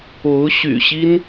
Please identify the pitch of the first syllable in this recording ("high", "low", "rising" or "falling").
rising